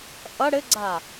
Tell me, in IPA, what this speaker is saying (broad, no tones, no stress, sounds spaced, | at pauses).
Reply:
ʔ ʌ ɽ ɘ ɡ͡ǀ a